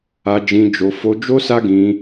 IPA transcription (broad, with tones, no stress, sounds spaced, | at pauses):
a˧ d͡ʒ ĩ˧ d͡ʒ o˧ f o˧ d͡ʒ o˦ s a˦ ɡ ĩ˧